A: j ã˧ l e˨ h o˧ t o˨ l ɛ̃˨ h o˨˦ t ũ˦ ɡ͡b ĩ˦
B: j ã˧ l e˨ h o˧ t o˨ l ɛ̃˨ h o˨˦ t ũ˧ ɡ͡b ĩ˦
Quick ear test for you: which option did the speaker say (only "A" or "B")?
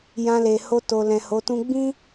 A